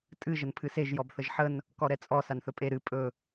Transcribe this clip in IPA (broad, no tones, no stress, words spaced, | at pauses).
tʼɨ ʒənpʰɨseʒ jɔbθəʒħən | kɔɾɛt͡sʼɔ sanθɵpʼe ɾɨ pʼɵ